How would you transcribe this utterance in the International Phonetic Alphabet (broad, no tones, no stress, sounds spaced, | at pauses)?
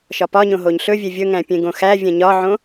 ʃ ɒ p ɒ ɲ õ ɦ o ɲ ɬ ɵ vʲ e vʲ ɵ ŋ æ̃ pʲ ẽ ɡ õ x æ vʲ ɛ̃ ɲ ɒ ʕ õ